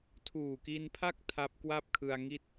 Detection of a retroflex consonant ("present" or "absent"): absent